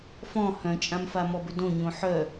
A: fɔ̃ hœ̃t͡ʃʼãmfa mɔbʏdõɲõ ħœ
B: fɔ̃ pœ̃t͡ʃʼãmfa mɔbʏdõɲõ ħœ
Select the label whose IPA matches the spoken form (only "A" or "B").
A